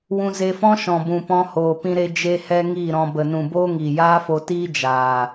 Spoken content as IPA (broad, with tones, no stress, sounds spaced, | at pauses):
w ũ˧ z e˧ f ɔ̃˦ ʃ ɔ̃˨ b ũ˨ p ɔ̃˧ h oː˨ p ĩ˧ ɾ e˧ d͡ʒ e˧ h ɛ˧ ŋ i˦˨ ɾ ɔ̃˨ b ə˨ n ũ˨ b oː˦ ŋ iː˨ j aː˦ f o˧ t iː˦ d͡ʒ aː˨